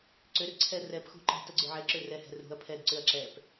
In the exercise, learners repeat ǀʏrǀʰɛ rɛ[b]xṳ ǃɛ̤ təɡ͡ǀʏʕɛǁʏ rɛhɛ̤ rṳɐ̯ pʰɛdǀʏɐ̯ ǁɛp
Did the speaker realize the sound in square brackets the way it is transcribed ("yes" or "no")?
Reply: no